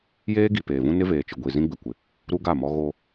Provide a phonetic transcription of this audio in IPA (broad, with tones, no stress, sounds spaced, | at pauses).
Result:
j eː˦ ɡ i˨ p eː˨ v ũ˦ n ɪ˦ v eː˨ t͡ʃ ɪ˨ ɡʷ i˨ z ĩ˦ ɡ͡b ɪ˨ kʷ ɪ˨ | ɾ u˦ ɡ a˦˨ m ɔ˦ ɣ o˦